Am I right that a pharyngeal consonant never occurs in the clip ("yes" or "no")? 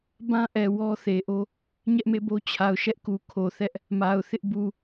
yes